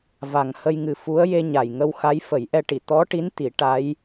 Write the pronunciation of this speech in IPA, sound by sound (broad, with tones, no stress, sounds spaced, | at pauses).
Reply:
v a˨˩ ŋ h ə˧ j ŋ ɨ˨˩ f u˧˥ ə̯ j e˧ ɲ a˨˩ j ŋ ə˧ w x a˧˥ j f ə˨˩˦ j ʔ ɛ˧ ʈ i˨˩˨ t̪ ɔ˧˥ ʈ i˧˥ n t̪ i˨˩˦ ʈ a˧˥ j